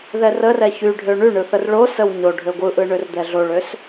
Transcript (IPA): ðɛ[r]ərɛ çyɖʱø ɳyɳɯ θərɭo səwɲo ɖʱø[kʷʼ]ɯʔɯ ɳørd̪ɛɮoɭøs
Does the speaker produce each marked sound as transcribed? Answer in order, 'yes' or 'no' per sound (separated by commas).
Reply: yes, no